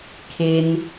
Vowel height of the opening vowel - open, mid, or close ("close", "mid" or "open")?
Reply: mid